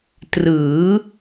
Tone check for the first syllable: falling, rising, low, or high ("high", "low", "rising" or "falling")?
rising